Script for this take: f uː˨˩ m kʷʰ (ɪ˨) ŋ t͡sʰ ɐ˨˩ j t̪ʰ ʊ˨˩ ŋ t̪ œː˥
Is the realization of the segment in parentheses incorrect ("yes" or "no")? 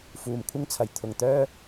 yes